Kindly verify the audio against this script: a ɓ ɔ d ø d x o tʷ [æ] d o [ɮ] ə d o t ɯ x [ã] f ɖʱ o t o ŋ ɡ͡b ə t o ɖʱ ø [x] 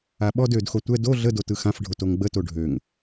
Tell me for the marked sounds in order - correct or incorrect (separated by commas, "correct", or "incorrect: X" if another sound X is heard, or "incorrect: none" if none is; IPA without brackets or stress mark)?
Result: incorrect: ɛ, correct, correct, incorrect: ŋ